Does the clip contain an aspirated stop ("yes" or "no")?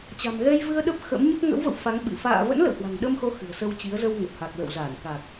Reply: no